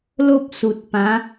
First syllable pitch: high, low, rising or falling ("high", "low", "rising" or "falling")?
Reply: high